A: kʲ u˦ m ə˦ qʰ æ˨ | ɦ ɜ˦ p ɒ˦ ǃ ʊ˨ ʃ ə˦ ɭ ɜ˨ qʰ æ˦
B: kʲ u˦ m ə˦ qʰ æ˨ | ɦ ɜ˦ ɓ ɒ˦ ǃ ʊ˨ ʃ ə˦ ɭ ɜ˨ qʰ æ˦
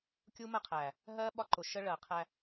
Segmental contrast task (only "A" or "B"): B